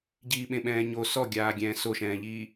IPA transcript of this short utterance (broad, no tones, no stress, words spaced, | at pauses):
ɟiːɓẽɓɛ̃ːɲo sɔɡʲaːɡʲɛ̃ː soʃɛ̃ːʎiː